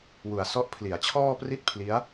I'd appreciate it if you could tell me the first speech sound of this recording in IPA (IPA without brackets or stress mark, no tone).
w